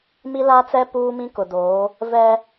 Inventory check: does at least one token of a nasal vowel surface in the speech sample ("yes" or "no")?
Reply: yes